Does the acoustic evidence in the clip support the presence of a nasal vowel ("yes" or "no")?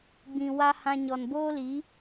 yes